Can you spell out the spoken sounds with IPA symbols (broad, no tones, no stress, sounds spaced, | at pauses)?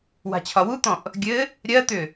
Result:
w a̤ t͡ɕʰ ɒ w u t̪ ɔ̃ ʔ | ɡʲ ɘ | ɾʲ ɜ t̪ ʏ